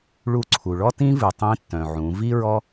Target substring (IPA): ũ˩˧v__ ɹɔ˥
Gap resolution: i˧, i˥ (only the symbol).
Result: i˥